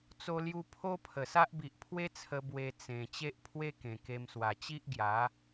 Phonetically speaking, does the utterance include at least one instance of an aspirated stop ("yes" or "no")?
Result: yes